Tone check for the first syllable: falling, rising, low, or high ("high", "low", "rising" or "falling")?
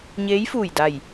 rising